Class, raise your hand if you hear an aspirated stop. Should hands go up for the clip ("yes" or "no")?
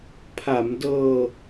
yes